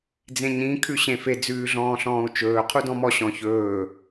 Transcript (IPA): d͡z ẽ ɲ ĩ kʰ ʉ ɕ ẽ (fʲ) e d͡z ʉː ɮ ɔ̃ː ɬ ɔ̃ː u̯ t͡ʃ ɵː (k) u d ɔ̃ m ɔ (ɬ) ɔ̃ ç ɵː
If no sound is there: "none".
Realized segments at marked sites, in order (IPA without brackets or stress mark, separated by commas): f, qʰ, ɕ